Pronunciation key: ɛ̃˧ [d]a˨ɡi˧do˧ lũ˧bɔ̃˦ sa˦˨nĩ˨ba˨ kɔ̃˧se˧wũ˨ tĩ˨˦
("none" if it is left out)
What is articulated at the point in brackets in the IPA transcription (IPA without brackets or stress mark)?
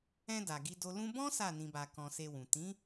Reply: d